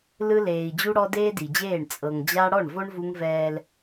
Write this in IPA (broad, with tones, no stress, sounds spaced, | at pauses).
l ɯ˦ l eː˨ i̯ d͡ʑ u˦ ɽ ɔ˦ d eː˦ d i˨ d͡ʑ eː˦˨ ɳ t͡sʼ ɤ˨ ŋ d͡ʑ a˦ ɽ ɔ˦˨ ɳ v o˦ ɳ v u˦ ŋ v ɛː˦ l